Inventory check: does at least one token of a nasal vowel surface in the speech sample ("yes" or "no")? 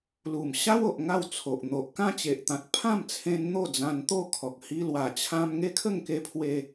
yes